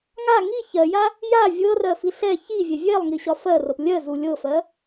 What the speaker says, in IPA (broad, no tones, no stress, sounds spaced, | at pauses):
ŋ a ŋ i ç ɜ j a | j a vʲ ɤ r ɜ f i ɬ ɛ ç i vʲ ɛ vʲ ɛ lˠ ŋ i ɕ ɒ f ɜ r ɤ p lʲ ɜ z u lʲ ɤ f ɜ